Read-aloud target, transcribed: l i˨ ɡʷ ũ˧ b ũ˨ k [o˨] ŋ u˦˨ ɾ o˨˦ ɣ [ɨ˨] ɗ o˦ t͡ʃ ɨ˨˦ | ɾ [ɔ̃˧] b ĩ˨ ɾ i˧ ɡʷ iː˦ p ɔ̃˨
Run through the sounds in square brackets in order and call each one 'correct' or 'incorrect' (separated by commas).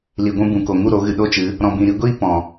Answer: correct, correct, incorrect